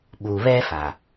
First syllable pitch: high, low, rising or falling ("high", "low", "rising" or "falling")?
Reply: low